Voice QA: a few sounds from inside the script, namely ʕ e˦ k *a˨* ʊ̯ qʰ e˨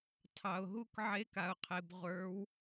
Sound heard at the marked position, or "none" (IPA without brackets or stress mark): a˨